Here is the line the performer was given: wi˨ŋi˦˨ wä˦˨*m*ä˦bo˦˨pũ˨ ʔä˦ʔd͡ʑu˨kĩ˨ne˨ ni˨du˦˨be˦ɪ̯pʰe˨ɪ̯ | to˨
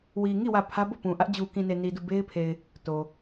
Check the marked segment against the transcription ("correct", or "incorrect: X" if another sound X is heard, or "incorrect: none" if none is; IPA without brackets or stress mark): incorrect: pʰ